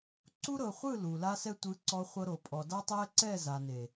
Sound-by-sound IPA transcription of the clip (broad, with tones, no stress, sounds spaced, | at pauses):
ǀ u˦ ɾ ɤ˨ χʷ ɯ˦˨ l u˨ l a˧ s ɛ˧ tʷ ɯ˨˦ ǀ ɔ˧ χʷ ɤ˧ ɾ o˨ pʼ ɔ˨ d a˦ tˤ ɛ˦ ǀ ɛ˦˨ z a˨ n e˨